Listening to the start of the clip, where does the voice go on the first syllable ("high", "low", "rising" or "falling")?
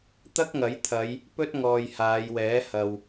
high